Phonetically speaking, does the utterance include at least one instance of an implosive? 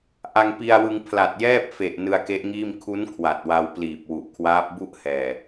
no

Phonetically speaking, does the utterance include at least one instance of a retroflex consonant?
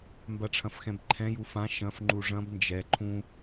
yes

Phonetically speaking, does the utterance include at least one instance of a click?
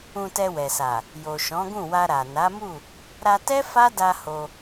no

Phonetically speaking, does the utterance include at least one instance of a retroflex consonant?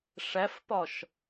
yes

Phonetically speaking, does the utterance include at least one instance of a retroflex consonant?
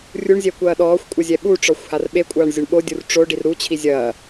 yes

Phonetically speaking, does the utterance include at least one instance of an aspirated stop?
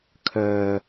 yes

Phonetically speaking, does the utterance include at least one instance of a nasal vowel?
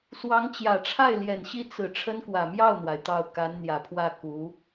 no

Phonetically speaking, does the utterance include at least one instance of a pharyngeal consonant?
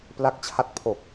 no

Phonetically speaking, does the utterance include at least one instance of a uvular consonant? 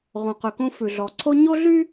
yes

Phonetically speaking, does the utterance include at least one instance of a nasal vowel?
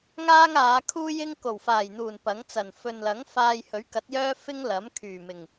no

